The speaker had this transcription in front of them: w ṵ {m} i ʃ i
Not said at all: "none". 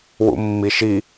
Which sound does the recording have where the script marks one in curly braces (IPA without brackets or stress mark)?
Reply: mː